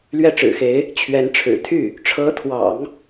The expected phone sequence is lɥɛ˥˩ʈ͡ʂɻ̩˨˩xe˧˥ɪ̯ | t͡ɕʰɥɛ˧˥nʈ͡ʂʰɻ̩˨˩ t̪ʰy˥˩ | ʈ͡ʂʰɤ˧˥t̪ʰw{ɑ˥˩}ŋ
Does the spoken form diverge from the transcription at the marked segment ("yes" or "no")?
yes